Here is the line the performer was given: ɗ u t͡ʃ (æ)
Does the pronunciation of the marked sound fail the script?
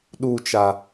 yes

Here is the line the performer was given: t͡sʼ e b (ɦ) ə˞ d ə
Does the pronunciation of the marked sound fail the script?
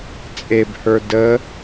yes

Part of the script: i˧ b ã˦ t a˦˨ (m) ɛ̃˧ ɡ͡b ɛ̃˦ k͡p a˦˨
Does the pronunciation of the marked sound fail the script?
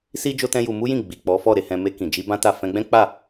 yes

